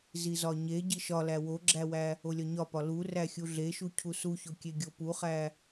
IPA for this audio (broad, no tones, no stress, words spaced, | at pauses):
zizɒɲe ɟiʃɒ læwoɡ͡ǁæwæ | olʲɒɲɒpɒ lu ræxʲuɮeʃu cʰusuço kʲeɡʲopuχæ